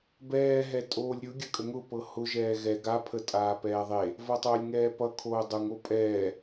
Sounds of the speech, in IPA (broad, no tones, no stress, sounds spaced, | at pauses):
b ɛː ɦ ɛ tʼ oː lʲ ɾʲ ʊ ɡʲ ə kʼ ə ŋ ʊ p ɤ h ʊ ʒ ɛː ɣ ɛ ɡ a pʰ ə tʼ aː p ɛː ðˤ e | v ʌ tˤ oː lʲ ŋ ɛː p ʌ kʰ oː dˤ ʊ ŋ o pʼ ɛː